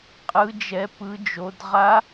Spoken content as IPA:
qʼɯ˦˥d͡ʒɛ˦˥pɯ˦˥d͡ʒo˦˥d ʁa˦˥

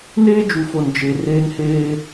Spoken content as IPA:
neː˦d͡ʒu˨fo˨n d͡ʒe˨ reː˦nheː˦

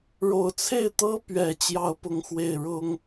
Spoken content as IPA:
ɻo˨˩ʊ̯t͡sʰe˥˩ɪ̯ t̪ɤ˥pɥɛ˨˩ t͡ɕjɑ˥˧ʊ̯pʊ˥˧ŋxwe˥˩ɪ̯ ɻʊ˥ŋ

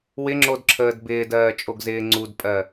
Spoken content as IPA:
wɪŋ͡ǁodǁʰəːd bɪːdɜːt͡ʃʼoɡzɪː ŋ͡ǀudpʼɜ

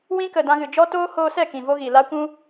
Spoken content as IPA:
wĩ˦kə˨ dã˧ɣɨ˨d͡ʒɔ˦ toː˦hoː˧sɛ˦˨ kĩ˨vo˦ɣi˨ la˦ kʷũ˦

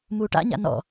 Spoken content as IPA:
muːʈa̰ɲa̰ nɔ̰

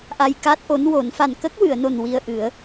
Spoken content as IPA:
ʔa˧jka˦˥t̚ʔo˧˥nwo˨˩˦n fa˨˩n kə˦˥k̚wɨ˨˩˨ə̯no˨˩n wi˧ə̯ʔɨ˨˩˦ə̯

